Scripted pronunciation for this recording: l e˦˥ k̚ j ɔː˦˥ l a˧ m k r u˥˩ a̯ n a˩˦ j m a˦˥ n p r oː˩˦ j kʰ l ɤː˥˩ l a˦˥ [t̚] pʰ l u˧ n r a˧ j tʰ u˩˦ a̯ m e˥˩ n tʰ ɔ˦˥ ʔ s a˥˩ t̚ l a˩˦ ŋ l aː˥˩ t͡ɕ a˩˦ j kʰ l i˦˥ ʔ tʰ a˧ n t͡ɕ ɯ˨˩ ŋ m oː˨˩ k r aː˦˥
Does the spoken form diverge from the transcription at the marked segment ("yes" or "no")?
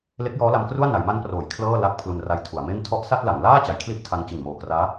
yes